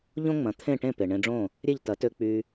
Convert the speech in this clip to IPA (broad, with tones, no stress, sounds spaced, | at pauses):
ʎ õ˥ ŋ͡m ɐ̃˩˥ t̪ʰ ẽ˥˩ ʈ ẽ˥˩ p e˩ ɳ ẽ˧ ɖ͡ʐ õ˥˩ | ɾʲ e˥˩ ʎ t ɐ˩˥ t ø˧ k͡p y˧